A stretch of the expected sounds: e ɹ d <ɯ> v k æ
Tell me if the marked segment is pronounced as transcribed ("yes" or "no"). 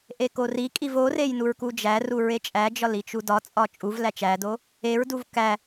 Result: no